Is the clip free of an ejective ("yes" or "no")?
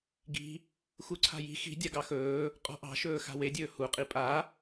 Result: no